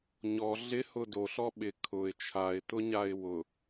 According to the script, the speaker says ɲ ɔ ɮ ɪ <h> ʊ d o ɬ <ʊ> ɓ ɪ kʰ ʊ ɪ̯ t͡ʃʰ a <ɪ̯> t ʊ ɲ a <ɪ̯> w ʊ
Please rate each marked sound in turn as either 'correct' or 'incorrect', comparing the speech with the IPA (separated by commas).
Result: correct, incorrect, correct, correct